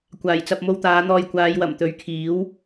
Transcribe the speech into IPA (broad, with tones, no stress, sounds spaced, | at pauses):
kʷ aː˨˩ j t͡s ɐ˨ p̚ m o˧ w t̪ aː˨˧ n̪ ɔː˧ j kʷ aː˨˧ j w ɐ˨˩ m t̪ ɵ˨˥ ɥ kʰ iː˨˥ w